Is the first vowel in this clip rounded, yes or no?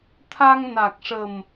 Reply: no